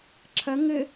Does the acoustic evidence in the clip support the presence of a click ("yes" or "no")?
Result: yes